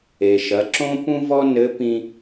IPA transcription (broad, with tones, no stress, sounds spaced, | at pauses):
e˩ ʃ ɐ˩˧ ǁ õ˥ p ũ˥ v ɔ˥ n ɘ˧˥ p ĩ˧